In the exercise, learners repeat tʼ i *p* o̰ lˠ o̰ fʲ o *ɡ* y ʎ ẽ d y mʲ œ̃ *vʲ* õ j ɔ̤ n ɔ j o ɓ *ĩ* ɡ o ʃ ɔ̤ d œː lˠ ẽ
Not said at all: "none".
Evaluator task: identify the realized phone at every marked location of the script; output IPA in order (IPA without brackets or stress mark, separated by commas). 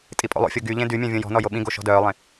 pʼ, ɡ, vʲ, ĩ